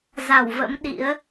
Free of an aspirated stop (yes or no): yes